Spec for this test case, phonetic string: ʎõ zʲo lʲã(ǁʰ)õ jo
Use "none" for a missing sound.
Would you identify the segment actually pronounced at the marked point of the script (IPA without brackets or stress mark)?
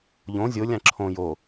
ǁʰ